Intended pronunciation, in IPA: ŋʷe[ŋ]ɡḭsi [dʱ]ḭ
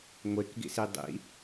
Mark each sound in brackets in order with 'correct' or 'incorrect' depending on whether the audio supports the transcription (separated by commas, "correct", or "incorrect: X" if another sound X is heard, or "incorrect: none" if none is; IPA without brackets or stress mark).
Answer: incorrect: k, incorrect: dˤ